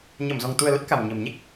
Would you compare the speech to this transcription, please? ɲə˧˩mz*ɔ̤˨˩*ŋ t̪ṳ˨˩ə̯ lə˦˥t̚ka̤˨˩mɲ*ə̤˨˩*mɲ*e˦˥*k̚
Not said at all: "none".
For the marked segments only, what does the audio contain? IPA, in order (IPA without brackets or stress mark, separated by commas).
ɔ̤˨˩, ə̤˨˩, e˦˥